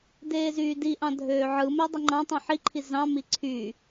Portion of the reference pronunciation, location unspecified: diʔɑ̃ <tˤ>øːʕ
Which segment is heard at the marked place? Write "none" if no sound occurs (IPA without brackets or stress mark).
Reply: dʱ